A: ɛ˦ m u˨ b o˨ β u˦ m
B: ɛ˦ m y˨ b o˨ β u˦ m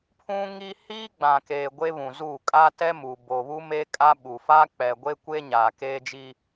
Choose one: A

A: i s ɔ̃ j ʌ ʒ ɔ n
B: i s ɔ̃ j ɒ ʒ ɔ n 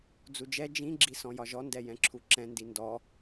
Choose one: B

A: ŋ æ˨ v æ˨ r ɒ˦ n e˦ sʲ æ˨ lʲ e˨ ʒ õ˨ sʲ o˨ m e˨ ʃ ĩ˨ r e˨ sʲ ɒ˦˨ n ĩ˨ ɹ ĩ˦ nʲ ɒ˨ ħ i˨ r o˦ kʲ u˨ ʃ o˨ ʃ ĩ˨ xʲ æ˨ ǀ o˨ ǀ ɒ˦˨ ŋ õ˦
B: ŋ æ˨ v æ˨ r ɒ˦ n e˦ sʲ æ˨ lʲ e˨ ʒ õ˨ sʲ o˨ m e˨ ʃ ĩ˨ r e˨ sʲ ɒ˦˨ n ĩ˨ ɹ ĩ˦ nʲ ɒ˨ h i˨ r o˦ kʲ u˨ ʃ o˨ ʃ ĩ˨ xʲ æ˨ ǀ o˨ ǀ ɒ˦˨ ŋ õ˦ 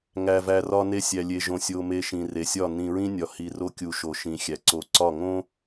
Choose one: B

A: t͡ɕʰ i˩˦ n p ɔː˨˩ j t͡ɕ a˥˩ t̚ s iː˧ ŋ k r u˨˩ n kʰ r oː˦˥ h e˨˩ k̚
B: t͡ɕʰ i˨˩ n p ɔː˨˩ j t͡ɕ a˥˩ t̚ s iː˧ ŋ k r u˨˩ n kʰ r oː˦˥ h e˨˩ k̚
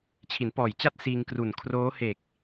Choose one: A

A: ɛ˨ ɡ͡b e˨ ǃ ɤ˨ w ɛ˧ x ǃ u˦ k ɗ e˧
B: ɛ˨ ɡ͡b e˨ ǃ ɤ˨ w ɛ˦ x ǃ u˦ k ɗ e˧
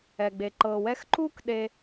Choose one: A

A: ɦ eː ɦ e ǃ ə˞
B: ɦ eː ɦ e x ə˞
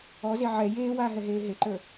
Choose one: A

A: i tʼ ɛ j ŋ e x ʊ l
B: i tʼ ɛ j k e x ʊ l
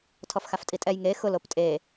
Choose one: A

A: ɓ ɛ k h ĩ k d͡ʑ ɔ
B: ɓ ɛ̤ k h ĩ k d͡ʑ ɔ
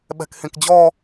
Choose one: B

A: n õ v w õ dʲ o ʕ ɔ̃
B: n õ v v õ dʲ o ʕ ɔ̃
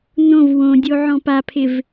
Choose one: A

